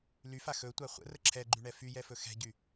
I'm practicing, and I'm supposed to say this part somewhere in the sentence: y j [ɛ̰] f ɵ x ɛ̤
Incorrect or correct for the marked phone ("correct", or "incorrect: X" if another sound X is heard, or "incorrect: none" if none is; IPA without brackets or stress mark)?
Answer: incorrect: ɛ